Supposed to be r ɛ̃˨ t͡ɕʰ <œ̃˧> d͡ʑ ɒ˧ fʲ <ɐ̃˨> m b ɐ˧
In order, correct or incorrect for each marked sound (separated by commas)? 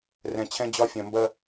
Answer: incorrect, correct